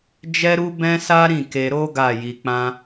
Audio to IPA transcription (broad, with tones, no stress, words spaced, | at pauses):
d͡ʒɛ˦ɾu˦ bɛ̃˦sa˦ ɾĩ˦˨ke˧ɾo˦ ɡa˦˨ji˧k͡pã˦